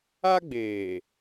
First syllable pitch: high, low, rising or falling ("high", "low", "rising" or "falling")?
high